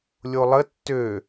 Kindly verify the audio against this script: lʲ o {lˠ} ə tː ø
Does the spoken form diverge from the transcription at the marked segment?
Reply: no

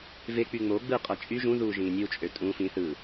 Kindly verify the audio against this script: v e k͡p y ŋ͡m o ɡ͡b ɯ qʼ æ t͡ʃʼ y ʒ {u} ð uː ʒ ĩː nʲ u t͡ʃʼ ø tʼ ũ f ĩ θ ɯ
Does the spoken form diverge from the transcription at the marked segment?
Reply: yes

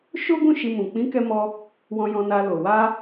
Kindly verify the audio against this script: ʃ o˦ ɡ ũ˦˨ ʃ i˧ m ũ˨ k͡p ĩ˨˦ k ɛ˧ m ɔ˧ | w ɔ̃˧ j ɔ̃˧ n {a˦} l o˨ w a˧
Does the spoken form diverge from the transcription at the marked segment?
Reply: yes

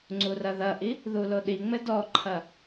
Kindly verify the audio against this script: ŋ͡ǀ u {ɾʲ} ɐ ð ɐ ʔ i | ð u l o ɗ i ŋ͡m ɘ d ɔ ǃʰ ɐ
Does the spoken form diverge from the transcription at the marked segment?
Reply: yes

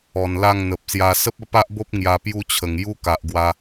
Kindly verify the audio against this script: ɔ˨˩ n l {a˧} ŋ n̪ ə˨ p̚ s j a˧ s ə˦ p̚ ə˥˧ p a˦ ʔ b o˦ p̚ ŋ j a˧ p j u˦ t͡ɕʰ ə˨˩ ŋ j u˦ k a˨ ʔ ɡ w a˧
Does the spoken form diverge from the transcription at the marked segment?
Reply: yes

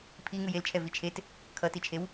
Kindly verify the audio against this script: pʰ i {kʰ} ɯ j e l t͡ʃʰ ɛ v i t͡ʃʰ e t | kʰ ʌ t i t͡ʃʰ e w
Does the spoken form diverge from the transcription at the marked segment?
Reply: yes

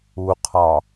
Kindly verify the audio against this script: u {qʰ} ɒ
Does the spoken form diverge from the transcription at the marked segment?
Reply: no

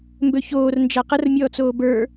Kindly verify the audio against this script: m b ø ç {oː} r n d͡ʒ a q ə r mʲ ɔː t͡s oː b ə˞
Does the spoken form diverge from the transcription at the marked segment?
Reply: no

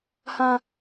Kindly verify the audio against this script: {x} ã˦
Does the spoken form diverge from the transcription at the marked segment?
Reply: yes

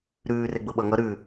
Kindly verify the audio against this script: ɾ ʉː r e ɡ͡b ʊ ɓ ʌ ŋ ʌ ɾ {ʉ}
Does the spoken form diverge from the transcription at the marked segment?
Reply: no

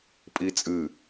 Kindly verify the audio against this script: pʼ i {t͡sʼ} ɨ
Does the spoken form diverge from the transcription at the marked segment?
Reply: no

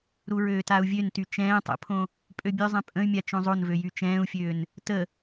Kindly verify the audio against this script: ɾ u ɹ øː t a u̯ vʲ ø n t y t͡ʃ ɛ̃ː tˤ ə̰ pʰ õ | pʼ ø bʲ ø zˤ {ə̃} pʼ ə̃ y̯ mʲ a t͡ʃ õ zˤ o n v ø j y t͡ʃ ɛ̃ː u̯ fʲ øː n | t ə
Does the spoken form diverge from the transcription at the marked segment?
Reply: yes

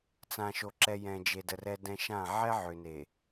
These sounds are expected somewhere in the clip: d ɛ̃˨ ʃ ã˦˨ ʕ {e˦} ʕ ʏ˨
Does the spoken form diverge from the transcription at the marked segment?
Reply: yes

